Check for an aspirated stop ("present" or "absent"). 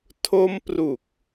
present